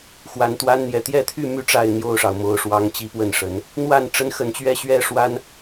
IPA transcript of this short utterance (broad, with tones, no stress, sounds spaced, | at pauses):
x w a˨˩ n t̪ w a˦ n n̪ j ɛ˨˩ t̪ j ɛ˥˨ t̪ʰ y˥˨ m y˦ ʈ͡ʂ a˥˨ ɪ̯ n̪ j o˥˨ ʊ̯ ʂ ɑ˩ ʊ̯ m o˨˦ ʊ̯ ʂ w ɑ˦ ŋ t͡ɕ i˦ p w ə˥˨ n ʂ ə˨˦ n | n̪ w a˥˨ n ʈ͡ʂ ə˦ n x ə˨˦ n t͡ɕ ɥ ɛ˦ ɕ ɥ ɛ˥˨ ʂ w a˦ n